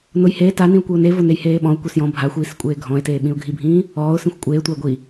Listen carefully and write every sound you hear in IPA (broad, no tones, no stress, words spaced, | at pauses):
nʊj heː tanĩʊ̯kʷiʊ̯ ne vʊnejheːɓɔ̃ʊ̯ kʷesjɔ̃ bʱaxʷiːs kʷʼeːɡʱɔ̃ɪ̯teː ɓĩʊ̯ɡʱibʱĩː | ɔːʊ̯ sĩxʷkʷʼeːtʷaɪ̯ ɡʷi